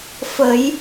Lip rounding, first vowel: unrounded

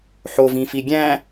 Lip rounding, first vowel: rounded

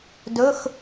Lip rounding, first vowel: rounded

